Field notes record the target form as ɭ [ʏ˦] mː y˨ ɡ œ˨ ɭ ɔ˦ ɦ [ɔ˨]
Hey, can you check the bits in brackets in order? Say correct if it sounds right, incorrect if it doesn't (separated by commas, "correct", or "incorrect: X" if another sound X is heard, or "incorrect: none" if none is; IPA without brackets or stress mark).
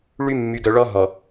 incorrect: y˦, correct